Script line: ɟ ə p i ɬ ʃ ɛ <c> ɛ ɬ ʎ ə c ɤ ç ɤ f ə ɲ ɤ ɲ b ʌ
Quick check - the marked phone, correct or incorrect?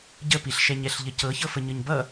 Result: incorrect